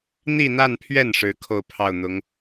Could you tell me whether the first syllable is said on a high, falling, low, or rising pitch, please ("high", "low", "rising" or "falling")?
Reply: falling